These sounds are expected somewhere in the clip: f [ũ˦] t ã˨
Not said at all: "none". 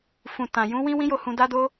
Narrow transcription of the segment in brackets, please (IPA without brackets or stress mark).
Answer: ũ˨